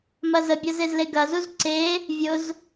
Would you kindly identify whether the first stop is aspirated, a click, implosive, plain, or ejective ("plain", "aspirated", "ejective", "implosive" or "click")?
plain